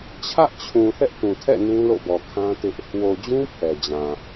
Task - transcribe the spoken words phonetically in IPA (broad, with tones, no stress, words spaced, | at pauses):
t͡ɕʰä˦ʔt͡ɕʰũ˨ θɛ˦ʔtũ˨tʰɛ̰˦˨ nũ˦lo̰˦˨bɔ˨ kʰã˦tɪ˦ʔ | wo˨d͡ʑũ˦ pʰɛ˨d͡ʑã˨